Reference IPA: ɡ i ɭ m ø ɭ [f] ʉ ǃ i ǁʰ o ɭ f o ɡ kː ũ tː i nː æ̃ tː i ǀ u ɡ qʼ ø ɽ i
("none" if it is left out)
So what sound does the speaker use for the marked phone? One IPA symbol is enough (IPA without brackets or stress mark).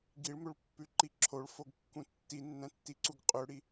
pː